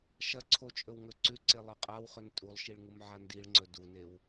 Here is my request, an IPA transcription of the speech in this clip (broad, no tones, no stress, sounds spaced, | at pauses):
ʃ ɐ ǀʰ o t͡ʃʼ ɵ w ŋ ɵ ǀ ʉ ǀ e lˠ ɨ qʼ a w χ ɵ n tʼ u lˠ ʃ i ɭ ŋ u m ʕ a n d i ɭ ŋ͡ǀ ɵ d u n e w